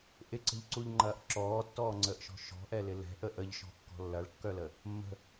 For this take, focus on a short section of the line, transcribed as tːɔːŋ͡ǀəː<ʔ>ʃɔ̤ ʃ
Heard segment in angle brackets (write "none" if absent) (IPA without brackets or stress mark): ʔ